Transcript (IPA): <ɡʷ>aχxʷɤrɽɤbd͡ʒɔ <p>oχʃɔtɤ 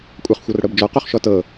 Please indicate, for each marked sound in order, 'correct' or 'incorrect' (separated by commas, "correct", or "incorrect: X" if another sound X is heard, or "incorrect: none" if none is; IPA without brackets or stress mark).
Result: incorrect: kʷʼ, incorrect: q